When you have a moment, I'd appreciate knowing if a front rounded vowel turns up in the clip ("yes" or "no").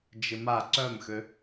yes